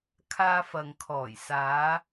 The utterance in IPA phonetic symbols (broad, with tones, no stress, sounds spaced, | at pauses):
kʰ aː˧ f ɐ˨ ŋ kʰ ɔː˨˩ j s aː˨˧